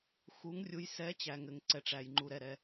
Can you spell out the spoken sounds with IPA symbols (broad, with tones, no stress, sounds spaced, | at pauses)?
x u˨˥ ŋ rʲ u˨˥ j s ɛ˨˥ t͡ɕ æ˩ ŋ ɘ˩ ŋ ǀ ɛ˩ ʈ͡ʂ æ˩ j ŋ͡ǃ u˩ ɾ ɛ˩ ɾ ɛ˩